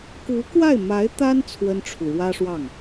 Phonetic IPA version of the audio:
ku˧˥kwa˥˩ɪ̯ma˧˥ɪ̯t̪a˥n t͡sʰwə˥nʈ͡ʂʰu˨ ɻwä˥ʂwɑ˥˩ŋ

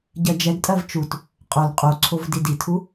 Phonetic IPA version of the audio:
ɟɜd͡ʒɛɡtʼɜv t͡ʃut | qʼol qʼoǀʰov diditʰu

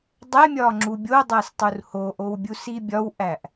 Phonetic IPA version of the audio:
dˤemʲɒ ŋ͡ǁubʲodˤæs tˤurhoʔow bʲusibʲɒwʔæʔ

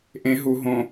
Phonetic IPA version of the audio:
ʔẽ ɦu ɦõ

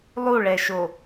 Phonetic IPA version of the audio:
lˠuɭɛʃo

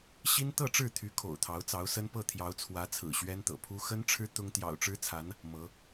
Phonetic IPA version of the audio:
ɕi˥n t̪ɤ˥˧ʈ͡ʂɻ̩˥˩t̪ʰy˧˥ kʰo̰˨˩ʊ̯t̪ʰɑ˧˥ʊ̯t͡sɑ˧˥ʊ̯sə˥n pɤ˥˩t̪ʰjɑ˧˥ʊ̯t͡sʰwä˧˥ t͡sʰɹ̩˨˩ɕɥɛ˥nt̪ɤ̰˨˩pʰu˥ xə˥nʈ͡ʂʰɻ̩˥ t̪ʊ˥ŋ t̪jɑ̰˨˩ʊ̯ʈ͡ʂɻ̩˥t͡sʰa˧˥n | mɤ˧˥

